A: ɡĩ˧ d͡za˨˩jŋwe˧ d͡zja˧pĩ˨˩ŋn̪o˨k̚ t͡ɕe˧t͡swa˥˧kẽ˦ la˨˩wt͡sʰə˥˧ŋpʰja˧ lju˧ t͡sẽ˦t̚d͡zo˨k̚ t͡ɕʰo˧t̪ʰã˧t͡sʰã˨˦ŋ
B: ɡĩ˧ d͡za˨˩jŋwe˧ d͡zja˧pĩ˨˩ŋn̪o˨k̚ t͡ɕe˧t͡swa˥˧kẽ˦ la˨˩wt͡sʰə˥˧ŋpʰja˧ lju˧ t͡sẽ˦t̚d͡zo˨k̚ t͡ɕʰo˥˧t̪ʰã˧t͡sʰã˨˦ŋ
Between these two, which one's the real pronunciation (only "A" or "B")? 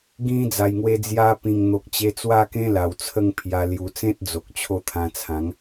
B